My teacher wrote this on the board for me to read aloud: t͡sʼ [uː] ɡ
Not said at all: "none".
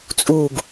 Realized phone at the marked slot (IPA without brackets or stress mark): uː